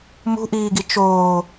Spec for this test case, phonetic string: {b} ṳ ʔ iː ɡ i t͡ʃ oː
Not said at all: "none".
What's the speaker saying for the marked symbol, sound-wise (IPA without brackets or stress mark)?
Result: m